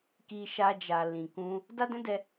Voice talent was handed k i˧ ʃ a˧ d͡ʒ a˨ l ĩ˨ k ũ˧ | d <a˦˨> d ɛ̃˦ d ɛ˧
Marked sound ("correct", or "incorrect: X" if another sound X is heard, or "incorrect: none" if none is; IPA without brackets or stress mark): incorrect: a˦